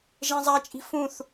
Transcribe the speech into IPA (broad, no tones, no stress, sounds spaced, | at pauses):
ʒ ẽ zˤ a t͡ʃʼ i̤ f ũ θ